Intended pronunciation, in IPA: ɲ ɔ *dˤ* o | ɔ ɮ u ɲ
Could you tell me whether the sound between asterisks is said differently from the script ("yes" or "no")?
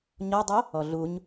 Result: no